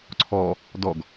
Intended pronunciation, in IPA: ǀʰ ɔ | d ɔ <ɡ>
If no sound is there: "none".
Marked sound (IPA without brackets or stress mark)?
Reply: ɡ